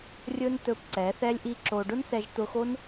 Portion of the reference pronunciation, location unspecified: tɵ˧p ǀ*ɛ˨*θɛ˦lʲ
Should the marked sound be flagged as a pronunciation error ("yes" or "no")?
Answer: yes